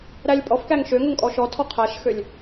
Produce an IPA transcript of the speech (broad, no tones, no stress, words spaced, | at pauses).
ɾælʲpʼɔfkæŋ ʃøŋɵŋ kʼɔʃɔtʰɔ qʰæʃxølʲ